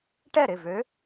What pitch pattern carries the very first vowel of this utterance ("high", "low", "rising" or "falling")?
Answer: falling